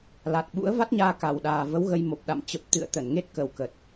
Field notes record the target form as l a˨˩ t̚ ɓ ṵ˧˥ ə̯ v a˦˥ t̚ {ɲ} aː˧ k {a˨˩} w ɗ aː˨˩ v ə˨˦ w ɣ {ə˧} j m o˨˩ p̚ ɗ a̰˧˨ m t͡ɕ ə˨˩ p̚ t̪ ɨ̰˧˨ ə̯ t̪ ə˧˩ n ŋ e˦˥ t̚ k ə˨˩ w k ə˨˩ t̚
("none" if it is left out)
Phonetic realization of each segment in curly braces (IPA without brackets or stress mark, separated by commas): ɲ, a˨˩, ə˧